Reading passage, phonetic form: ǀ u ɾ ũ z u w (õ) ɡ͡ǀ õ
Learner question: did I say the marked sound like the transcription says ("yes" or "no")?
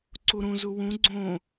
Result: no